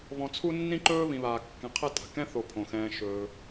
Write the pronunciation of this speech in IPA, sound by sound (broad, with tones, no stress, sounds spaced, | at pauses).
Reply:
β ɔ̃˨ t͡sʰ u˦ nː ĩ˥ ǃ ɵː˥ β ĩ˨ β aː˨ kː ɛ̃˨ qʰ ɛ˦ tʼ a̤˩ k ɛ̃˥ θ o˨ pʰ õ˩ x ɛ̃ː˨ ʃ ɵː˩